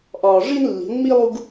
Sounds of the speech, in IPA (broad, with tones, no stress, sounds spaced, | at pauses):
ʔ ɒː˨ ʐ i˦ n lː i̤˨˦ n m i˦ lˠ u˦ ɡ